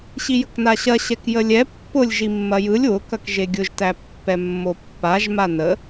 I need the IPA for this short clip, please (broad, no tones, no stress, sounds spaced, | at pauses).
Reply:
ɕ i j ə k n a ɕ ɐ ɕ ɛ k j ə lʲ ɛ pː ʊ lʲ ʒ i mː ɐ j ɯ lʲ w ʊ k ɐ k ʒ e ɡʲ ʊ ʒ t æ pː ɛ mː o pː a ʒ m a n ə